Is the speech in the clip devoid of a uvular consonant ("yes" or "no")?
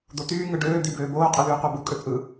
no